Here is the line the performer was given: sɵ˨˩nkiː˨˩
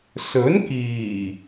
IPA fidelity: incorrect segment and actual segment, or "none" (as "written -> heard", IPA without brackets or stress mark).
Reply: ɵ˨˩ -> ɵ˨˥